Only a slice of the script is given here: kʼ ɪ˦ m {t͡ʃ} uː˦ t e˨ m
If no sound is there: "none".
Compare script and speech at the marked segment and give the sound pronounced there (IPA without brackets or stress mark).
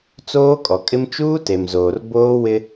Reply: t͡ʃ